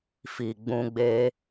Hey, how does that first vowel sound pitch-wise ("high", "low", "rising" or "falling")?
low